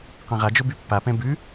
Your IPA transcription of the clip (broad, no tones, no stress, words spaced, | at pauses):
qãʁad͡ʒo bypːapɛ̃ bʉ